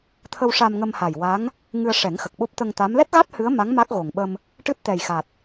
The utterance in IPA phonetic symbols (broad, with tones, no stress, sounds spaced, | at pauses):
t̪ʰ ə˧ w ʂ a˧ m ŋ ə˧ m h a˨˩ j w a˧˥ ŋ | ŋ ɨ˧ ə̯ ʂ ɛ˨˩˦ ŋ x ə˨˩ k̚ ɓ o˦˥ p̚ t̪ ə˧ ŋ t̪ a˧˥ m l ɛ˦˥ t̚ ɣ a˦˥ t̚ h ɨ˧˥ ə̯ m a˧˥ ŋ m a˦˥ k̚ ɣ o˨˩ ŋ ɓ ə˧ m | ʈ ɨ˦˥ t̚ t̪ ɛ˨˩ j x a˨˩ t̚